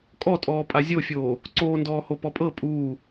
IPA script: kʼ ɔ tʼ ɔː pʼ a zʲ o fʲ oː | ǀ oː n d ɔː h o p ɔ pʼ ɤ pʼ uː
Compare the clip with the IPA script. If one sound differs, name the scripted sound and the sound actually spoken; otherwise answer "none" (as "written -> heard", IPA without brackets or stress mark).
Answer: none